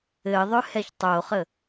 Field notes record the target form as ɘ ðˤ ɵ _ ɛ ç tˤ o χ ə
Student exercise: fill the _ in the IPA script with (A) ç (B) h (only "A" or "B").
B